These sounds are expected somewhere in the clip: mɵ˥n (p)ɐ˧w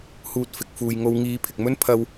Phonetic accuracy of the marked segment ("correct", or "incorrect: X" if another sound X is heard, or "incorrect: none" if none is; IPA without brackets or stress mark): incorrect: pʰ